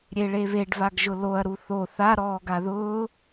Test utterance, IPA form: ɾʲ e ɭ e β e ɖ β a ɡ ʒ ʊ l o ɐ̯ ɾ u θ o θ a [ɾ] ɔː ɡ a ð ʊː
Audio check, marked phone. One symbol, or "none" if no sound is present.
ɾ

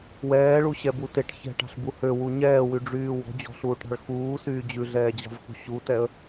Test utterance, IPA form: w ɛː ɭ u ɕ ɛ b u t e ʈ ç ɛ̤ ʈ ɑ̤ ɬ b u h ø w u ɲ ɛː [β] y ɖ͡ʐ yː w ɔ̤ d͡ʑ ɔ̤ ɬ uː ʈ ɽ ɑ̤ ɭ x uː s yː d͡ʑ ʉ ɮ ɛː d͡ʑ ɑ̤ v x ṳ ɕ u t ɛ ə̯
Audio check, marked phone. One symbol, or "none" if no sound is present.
w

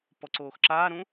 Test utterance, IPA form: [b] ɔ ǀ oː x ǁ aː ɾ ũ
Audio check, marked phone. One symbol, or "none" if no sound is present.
p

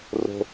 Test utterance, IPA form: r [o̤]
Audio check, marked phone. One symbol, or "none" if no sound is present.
o̤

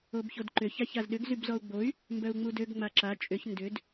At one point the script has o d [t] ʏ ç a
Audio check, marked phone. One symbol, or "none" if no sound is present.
ǃ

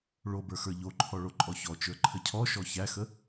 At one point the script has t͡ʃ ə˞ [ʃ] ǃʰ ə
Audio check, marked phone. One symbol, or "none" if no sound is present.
none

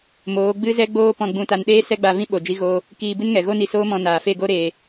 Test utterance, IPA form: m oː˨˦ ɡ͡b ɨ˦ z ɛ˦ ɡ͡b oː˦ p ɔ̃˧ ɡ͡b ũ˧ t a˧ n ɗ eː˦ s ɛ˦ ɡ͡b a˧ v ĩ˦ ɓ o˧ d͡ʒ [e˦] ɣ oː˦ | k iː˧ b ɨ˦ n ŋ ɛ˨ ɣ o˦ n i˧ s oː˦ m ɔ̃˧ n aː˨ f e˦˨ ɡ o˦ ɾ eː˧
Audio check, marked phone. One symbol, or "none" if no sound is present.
i˦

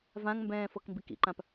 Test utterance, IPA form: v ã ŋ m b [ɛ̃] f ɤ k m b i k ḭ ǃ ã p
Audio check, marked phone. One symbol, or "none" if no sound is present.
ɛ̃ː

